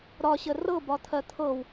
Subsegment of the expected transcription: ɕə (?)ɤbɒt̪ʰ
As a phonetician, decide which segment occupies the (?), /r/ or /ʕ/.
r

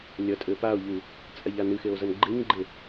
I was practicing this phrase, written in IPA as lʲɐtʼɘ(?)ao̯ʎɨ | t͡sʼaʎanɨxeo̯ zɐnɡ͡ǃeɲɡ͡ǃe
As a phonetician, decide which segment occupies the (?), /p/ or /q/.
p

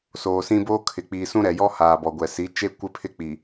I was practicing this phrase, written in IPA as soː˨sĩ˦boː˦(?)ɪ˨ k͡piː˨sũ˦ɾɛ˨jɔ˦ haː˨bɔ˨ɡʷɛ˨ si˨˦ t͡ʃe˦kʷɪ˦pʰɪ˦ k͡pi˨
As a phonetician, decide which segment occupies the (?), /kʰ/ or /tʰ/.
kʰ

